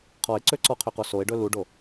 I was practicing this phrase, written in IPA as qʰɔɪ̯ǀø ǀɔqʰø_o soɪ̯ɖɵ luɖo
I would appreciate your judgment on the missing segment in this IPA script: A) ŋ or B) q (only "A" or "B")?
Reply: B